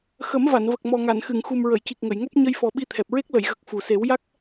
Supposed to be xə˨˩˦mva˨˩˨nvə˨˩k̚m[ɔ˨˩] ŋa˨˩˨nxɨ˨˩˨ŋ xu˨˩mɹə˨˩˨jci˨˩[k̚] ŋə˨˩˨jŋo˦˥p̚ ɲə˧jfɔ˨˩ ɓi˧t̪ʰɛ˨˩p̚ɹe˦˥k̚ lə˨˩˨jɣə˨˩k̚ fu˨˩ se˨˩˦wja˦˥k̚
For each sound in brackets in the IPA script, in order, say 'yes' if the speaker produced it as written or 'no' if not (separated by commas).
yes, yes